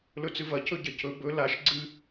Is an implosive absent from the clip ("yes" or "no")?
yes